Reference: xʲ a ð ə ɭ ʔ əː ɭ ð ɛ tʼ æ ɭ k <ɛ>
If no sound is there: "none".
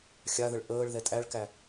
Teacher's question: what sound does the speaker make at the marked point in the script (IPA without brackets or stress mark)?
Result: æ